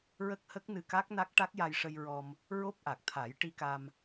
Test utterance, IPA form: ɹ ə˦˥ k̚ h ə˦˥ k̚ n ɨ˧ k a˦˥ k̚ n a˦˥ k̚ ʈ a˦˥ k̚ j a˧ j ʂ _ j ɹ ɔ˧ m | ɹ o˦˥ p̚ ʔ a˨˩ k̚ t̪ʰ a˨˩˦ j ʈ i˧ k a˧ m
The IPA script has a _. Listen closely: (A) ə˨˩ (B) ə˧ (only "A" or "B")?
B